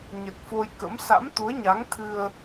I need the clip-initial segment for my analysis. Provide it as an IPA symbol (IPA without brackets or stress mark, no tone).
ɲ